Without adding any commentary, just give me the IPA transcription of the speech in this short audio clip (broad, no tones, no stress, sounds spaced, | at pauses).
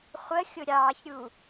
χʷ ə xʲ ʊ ɾʲ ɑ ç ɾʲ u